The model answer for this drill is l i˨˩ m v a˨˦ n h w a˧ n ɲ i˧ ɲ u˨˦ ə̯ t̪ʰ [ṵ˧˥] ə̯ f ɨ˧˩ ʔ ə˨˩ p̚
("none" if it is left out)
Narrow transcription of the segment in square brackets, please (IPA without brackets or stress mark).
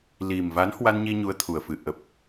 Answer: u˨˩